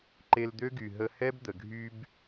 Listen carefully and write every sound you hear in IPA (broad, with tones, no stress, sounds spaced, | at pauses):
ǃ e˧ l d̪ ø˦ ɡ y˨ ɦ ə˧ h ɛ˦ b d̪ ə˨ ɡʱ y˧ b